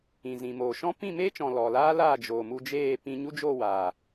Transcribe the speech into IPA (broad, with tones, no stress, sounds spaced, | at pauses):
ĩ˨ z ĩ˨ m oː˨ ʃ ɔ̃˦ p ĩ˦˨ m eː˦ t͡ʃ ɔ̃˨ l ɔ˨ l aː˦ l aː˦˨ d͡ʒ oː˨ m u˧ d͡ʒ eː˦˨ p ĩ˧ ɲ u˦ d͡ʒ oː˦˨ w aː˨